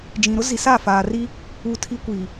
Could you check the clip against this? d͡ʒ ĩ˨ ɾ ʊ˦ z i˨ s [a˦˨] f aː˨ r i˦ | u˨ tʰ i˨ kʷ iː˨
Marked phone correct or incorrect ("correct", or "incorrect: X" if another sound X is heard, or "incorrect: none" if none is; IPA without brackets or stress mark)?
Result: correct